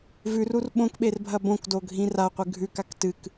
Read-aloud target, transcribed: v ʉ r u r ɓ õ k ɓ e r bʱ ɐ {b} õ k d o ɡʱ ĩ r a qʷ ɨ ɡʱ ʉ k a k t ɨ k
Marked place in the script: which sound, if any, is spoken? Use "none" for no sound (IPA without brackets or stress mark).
b